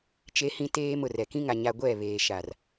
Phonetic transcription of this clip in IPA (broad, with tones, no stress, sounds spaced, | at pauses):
t͡ʃ e˦ h ĩ˦ t eː˦ m ʊ˨ r ɛ˨ k ĩ˦ ŋ a˨ ɲ a˨ ɡʷ ɛ˦˨ β eː˨ ʃ a˨ r